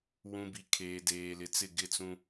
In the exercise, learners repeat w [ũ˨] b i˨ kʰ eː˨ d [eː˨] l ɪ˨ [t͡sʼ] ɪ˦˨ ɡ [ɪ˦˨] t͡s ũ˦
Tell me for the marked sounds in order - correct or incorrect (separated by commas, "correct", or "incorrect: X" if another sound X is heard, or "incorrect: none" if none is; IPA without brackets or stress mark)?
correct, correct, incorrect: t͡s, correct